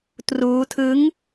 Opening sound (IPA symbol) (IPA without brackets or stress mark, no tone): t